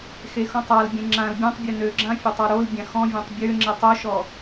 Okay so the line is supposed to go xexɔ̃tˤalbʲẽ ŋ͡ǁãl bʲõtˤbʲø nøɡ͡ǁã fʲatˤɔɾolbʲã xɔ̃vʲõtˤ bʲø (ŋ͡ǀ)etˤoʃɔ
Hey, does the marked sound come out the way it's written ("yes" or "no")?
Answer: no